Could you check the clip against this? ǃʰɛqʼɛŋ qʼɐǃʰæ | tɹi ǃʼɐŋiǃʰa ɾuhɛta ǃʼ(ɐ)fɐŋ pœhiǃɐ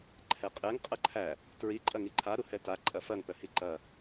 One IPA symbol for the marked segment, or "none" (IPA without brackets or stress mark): ɐ